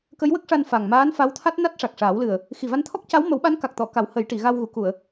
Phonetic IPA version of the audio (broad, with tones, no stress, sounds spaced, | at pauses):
k ə˧˥ j w ə˦˥ k̚ ʂ a˧ n f a˨˩ ŋ m aː˧˥ n f a˧˥ w t̪ʰ a˦˥ t̚ n a˦˥ t̚ ʂ a˨˩ k̚ ʂ aː˨˩˦ w l ɨ˨˩ ə̯ | x i˨˩ v a˧ n t̪ʰ ɔ˦˥ k̚ c a˧˥ w m ə˨˩˦ w ɓ a˧˥ n k a˨˩ k̚ t̪ ɔ˨˩˨ k a˨˩˦ w h ə˨˩˦ j ʈ i˨˩˨ ɣ a˧ w ɣ u˨˩˨ k u˨˩˨ ə̯